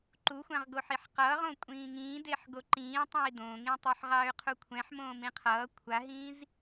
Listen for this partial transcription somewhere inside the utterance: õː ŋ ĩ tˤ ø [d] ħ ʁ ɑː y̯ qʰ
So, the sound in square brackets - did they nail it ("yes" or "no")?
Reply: no